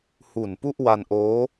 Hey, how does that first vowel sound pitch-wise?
low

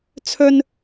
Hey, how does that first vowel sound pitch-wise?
high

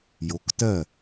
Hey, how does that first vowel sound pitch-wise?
rising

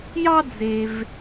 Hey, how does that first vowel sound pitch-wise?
high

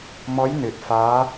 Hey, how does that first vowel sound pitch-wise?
rising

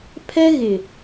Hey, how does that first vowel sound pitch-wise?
high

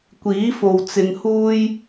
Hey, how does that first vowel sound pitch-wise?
rising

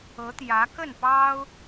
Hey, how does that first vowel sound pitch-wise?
rising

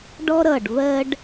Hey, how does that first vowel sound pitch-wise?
high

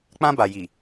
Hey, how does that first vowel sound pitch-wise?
high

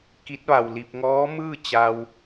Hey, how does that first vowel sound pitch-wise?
rising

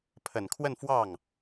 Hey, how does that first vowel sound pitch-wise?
low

